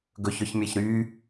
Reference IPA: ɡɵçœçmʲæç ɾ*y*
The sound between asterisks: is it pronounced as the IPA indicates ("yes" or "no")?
no